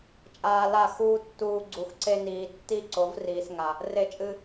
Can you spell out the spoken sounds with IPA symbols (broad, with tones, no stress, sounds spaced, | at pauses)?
t͡ʃʼ aː˧ l a˦˨ x uː˦ tː uː˧ ɡ͡ǀ u˨ x ǀ e˧ n iː˨ tː i˦˨ ǀ o˨˦ v r iː˨ s ŋ a˨ | r e˧ t͡ʃʼ ɨ˧